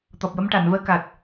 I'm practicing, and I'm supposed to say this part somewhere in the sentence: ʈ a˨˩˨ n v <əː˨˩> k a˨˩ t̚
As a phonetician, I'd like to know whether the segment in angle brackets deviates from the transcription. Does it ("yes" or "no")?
yes